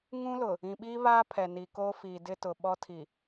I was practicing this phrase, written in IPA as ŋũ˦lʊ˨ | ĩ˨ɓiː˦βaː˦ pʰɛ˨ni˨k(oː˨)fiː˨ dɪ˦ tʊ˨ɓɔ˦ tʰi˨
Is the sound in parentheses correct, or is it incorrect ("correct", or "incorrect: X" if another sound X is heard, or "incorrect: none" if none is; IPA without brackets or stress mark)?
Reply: incorrect: oː˦